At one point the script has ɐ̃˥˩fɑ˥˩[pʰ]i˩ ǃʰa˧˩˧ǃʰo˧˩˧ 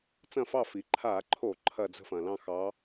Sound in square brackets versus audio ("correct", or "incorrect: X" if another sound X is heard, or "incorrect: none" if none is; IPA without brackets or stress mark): incorrect: f